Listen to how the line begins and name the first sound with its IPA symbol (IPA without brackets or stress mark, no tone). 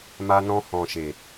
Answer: m